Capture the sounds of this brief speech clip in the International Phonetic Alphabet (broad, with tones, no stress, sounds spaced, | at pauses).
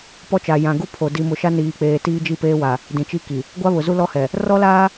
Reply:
p ɔ˦ t͡ʃ a˨ j ã˨ ɡ u˦ pʰ o˨ d i˨ m ʊ˨ ʃ a˦ n iː˨ k͡p eː˨ t iː˦ d͡ʒ i˦˨ p eː˦ w a˨ | d ĩ˨ t͡ʃ i˦ k i˨ | ɡʷ a˦ β ʊ˨ z u˦ l ɔ˦ h ɛ˨ | r ɔ˦ l aː˦